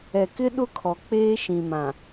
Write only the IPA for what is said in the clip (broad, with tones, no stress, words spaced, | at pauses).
ɛ˨kɪ˦ ɗʊ˦kʰɔ˨k͡peː˦ ʃĩ˨mã˨